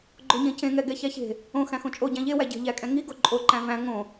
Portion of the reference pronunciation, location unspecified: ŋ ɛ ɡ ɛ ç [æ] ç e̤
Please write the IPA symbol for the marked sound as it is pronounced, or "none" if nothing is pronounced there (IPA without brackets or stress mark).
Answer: æ